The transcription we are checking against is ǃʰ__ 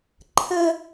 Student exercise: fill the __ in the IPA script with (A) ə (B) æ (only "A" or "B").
A